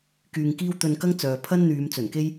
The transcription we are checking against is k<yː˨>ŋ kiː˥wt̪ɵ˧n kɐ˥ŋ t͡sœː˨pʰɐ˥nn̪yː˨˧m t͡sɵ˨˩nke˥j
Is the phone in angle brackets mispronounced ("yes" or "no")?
no